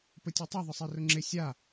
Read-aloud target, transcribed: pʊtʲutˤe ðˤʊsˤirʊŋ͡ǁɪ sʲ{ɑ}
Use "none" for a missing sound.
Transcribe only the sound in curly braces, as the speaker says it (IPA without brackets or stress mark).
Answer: a